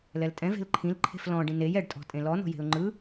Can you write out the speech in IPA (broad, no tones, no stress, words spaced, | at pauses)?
lɛltʼɛ̃ ve̤lǃʰĩl ǃʰe̤flɔ̃ ɖĩnej ɛɖ tʼɔ̤tʼẽlɔ nɔ̤je̤ʊ̯ŋ͡ǃɯ